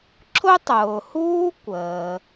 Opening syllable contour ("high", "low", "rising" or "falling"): high